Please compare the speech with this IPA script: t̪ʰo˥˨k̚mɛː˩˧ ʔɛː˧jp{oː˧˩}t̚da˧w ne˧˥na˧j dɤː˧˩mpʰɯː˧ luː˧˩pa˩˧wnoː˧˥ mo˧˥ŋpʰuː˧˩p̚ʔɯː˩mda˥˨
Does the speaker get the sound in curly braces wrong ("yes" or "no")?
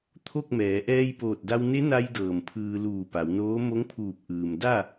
no